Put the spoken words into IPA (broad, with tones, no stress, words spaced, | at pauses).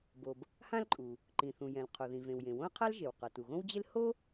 bo˩b | hã˥lǃʼu˩ | ǃĩ˩θũ˩jɛ̃˩l qʰo˩ðĩ˩vẽ˩wjẽ˩ wõ˥ɐ̯qʰa˥lʒe˩w qʌ˩tu˩ɣõ˥wd͡ʑe˥l ho˥